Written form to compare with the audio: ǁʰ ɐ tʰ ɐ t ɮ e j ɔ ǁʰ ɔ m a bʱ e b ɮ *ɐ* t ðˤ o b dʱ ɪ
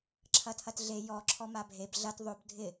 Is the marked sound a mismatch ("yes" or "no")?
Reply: no